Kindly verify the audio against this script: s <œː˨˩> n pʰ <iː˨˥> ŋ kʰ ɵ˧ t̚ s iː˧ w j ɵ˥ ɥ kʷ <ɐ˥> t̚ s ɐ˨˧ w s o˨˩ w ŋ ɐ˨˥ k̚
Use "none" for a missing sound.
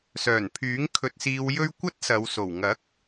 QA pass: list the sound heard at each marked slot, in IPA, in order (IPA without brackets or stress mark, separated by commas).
œː˨˩, yː˨˥, ɐ˥